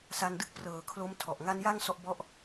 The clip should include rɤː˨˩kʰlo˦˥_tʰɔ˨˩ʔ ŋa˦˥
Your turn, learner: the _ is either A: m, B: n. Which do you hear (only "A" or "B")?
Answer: A